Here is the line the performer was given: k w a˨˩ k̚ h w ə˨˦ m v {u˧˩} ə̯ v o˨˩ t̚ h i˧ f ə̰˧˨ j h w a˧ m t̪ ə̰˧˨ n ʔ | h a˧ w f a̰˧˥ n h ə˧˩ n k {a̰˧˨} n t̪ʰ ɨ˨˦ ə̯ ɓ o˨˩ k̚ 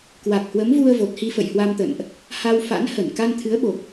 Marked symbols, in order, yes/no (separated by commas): no, no